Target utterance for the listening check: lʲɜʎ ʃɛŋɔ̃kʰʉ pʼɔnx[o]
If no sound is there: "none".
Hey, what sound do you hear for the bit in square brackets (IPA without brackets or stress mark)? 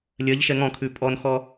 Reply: ɔ